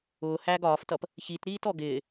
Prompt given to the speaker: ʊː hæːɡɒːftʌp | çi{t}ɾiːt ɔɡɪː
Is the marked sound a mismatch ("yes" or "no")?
no